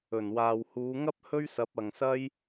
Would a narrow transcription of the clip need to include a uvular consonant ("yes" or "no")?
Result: no